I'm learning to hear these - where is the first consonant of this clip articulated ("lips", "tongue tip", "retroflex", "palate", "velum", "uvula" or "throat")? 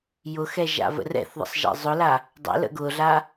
palate